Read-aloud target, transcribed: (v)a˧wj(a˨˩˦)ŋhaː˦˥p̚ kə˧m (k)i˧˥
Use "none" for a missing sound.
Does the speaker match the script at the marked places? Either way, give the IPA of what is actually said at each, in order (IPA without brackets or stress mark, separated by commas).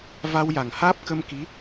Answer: v, a˨˩, k